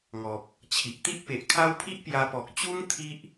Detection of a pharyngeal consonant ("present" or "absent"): absent